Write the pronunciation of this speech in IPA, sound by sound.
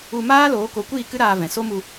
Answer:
u˧ maː˦ loː˨˦ko˨˦kʷiː˦˨ kɨ˦ɾaː˧vɛ̃˨ so˦mu˧

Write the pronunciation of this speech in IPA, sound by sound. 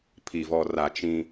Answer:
pʰi˨vɔ˨ra˨ t͡ʃĩ˦

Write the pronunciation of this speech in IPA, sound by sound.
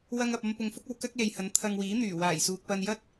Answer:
wɐ˧ŋɐ˨p̚ɐ˧m pʊ˨ŋfʊ˥k̚ɐ˨˧w kɐ˥k̚le˨jhɐ˨˥n t̪ʰɐ˧ŋwiː˨˥n̪yː˨˩ waː˨˩jsuː˨k̚pɐ˧njɐ˥t̚

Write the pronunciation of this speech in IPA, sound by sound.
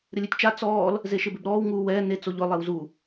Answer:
ɾɪlʲetʲt͡ʃa t͡sɔːl | zeʃɪbɪbɾɔːw ŋuːwɛː ne t͡soʎʊ lˠewzu

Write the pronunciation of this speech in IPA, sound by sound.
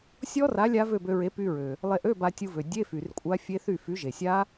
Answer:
sʲɔ˦˥ra˨˥ lʲa˦˥vø˥˨bø˧ɹe˨˥ py˧ɹø˩ | lˠe˧ʔø˧˥˧ ba˧tʲu˧vø˩ dʲe˧˥˧fy˩r kʷʼa˦˥fʲe˦˥θy˥˨ fy˨˥ʒe˩sʲa˦˥

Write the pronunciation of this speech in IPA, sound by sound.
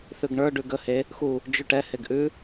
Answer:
θʉɡɳə˞ ɖʉɡə he | xu | d͡ʒʉʈɛ heɡʔʉ

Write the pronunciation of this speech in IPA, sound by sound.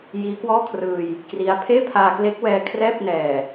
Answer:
jiː˦˥kwɔː˥˩kʰrɯː˧j | kri˦˥a̯ pʰeː˥˩pʰaː˧kle˦˥k̚ wɛː˧kʰrɛː˥˩p̚nɛː˨˩

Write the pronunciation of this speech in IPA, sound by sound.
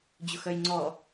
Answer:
d͡ʑʊxœjŋ͡ǀɔ

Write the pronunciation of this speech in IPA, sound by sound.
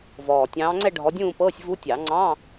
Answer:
vɔː˨˩ tʲɑ̃ː˨˦ŋ͡ǀɛ˥˧ ɖʱɔ˨˦dʲũː˥˧pɤː˧˥˧sʲ vu˦˥ tʲɑ˨˩˦ ŋ͡ǀɑ̃˧˥˧

